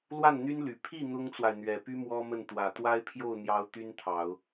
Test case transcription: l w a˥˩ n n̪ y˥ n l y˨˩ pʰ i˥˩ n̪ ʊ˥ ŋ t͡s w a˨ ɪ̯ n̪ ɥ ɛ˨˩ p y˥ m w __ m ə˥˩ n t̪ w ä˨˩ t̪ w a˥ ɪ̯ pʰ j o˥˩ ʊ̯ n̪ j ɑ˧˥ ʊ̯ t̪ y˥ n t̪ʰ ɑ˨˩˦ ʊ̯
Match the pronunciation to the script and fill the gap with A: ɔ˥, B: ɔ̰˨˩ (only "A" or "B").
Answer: A